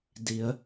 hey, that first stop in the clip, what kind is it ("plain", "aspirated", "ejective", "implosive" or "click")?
plain